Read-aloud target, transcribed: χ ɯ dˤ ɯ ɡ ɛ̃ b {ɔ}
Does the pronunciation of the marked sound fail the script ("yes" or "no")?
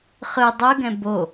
yes